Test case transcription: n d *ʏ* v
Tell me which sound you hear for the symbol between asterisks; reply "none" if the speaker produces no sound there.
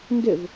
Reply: ʏ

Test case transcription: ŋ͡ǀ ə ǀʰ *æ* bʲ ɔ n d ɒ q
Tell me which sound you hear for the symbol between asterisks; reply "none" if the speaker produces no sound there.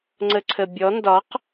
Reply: ə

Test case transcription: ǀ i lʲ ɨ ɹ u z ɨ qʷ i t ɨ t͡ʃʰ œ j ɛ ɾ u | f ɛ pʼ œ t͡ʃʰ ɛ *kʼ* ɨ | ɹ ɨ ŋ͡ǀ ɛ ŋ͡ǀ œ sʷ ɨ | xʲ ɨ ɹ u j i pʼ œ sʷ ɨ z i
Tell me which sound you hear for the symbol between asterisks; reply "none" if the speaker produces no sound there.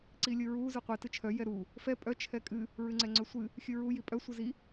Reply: kʼ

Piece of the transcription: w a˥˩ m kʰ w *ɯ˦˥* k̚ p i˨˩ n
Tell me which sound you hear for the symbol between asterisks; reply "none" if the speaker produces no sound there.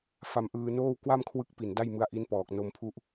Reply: ɯ˦˥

